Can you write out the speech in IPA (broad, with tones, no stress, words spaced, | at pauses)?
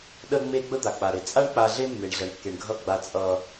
ɗə˦ŋ͡me˦ ɡ͡bə˦d̪a˨k͡pa˨ɾe˨ t͡sʼa˦ɳk͡pa˨ɮe˦ mːe˨ɳɮʌ˨ɳkːe˨ɳɡʱʌ˦˨ ɡ͡ba˦t͡sʼʌ˦